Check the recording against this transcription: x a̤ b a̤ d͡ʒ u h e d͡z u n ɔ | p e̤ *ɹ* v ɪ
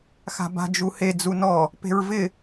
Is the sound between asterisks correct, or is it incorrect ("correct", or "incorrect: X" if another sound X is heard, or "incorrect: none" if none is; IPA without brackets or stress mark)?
correct